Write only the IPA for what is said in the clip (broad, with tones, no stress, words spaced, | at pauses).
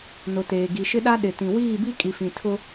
nʊ˨teː˨ɡi˨ʃɪ˦ ɗa˦ ɗɪ˨tĩ˨ wiː˦˨bi˦ kʼi˨fĩ˨ tʰʊ˦